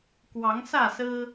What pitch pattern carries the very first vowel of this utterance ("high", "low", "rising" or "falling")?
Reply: rising